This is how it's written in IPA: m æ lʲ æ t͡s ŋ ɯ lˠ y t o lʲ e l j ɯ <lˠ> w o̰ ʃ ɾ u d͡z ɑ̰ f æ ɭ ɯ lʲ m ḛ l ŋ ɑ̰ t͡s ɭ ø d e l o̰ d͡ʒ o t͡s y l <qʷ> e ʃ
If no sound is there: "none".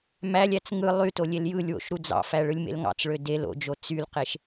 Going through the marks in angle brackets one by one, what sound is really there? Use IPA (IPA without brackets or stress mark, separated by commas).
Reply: lʲ, q